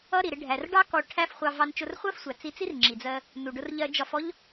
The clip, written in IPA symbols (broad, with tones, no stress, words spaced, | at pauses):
ʌ˥ ɾi˩ɾɪ˧ ɖʱæ˩rɖɑ˥ kɔ˧ʈʰæ˥f χʷɑ˧ vɑ˧nt͡ʃʊ˧r χʷɜ˥fsʷæ˩ t͡si˧t͡si˥rŋ͡ǁi˩d͡zɜ˧ | nu˩ɖʊ˧r ʎɜ˧d͡ʒɒ˧fɔ˥ʎ